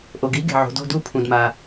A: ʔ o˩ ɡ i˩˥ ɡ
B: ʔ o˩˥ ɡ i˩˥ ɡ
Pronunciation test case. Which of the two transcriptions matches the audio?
A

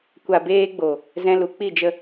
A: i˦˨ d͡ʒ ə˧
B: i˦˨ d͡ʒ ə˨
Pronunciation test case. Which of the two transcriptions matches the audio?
A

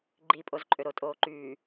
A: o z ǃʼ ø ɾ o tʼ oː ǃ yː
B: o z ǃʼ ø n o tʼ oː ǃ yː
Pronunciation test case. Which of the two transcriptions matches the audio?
A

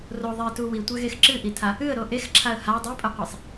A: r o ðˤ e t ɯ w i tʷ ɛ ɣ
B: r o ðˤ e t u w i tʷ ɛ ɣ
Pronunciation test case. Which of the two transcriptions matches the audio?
B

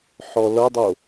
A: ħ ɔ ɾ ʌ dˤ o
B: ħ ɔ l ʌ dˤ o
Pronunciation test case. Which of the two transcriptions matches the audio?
B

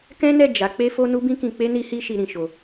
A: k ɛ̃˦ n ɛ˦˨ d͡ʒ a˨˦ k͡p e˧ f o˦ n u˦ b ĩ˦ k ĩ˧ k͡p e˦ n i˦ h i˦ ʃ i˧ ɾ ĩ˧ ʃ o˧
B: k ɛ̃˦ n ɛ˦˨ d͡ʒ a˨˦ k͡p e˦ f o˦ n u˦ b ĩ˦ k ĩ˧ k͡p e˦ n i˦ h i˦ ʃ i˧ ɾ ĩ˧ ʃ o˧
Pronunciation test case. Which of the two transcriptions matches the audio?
B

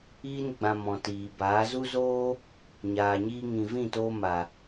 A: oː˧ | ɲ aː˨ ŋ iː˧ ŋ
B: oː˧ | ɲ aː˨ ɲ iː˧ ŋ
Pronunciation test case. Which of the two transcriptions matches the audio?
B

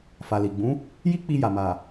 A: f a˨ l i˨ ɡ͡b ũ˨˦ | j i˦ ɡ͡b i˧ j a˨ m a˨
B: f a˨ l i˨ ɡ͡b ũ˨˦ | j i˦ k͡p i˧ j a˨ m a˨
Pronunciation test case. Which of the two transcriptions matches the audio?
B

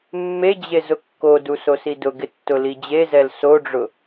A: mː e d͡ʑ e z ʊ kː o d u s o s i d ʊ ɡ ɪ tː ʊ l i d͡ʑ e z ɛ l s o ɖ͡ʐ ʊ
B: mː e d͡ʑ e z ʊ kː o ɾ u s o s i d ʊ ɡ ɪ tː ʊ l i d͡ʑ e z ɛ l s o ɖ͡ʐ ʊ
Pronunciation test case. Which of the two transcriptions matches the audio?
A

